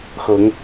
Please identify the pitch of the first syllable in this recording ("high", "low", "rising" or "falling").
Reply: rising